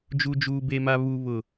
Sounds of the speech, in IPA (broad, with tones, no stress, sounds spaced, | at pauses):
d͡ʒ u˨ d͡ʒ uː˨ b e˨ m a˨ β u˨ β ʊ˨